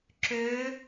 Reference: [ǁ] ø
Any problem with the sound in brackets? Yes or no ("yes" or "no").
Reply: no